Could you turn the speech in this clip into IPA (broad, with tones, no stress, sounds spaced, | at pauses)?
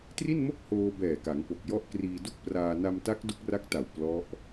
t r i˥˩ n m o˥˩ k̚ h oː˧ b ɛː˨˩ k a˩˦ ŋ p o˨˩ k̚ j ɔ˦˥ ʔ k r iː˧ d u˥˩ k̚ p r aː˧ n a˧ m t a˦˥ k̚ d u˦˥ k̚ r a˦˥ k̚ t a˨˩ w p l ɔ˦˥ ʔ